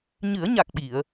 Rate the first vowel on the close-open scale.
close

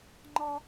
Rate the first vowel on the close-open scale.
open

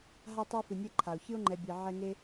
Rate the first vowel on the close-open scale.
open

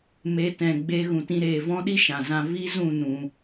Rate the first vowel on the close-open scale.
mid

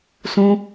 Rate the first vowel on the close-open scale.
close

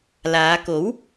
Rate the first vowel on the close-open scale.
open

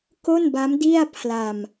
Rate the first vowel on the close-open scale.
mid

